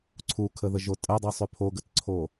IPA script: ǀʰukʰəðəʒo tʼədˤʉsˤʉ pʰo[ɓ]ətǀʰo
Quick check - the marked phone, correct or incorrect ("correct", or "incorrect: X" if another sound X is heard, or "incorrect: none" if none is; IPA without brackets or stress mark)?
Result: incorrect: ɡ